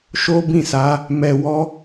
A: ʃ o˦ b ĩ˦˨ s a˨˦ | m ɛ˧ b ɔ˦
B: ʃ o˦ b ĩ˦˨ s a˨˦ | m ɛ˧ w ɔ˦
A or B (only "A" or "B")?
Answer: B